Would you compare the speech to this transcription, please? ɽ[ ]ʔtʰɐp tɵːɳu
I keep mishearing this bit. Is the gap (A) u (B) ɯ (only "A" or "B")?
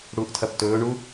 A